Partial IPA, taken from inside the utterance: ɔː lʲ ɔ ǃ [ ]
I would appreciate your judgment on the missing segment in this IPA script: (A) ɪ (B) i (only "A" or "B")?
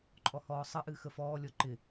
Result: A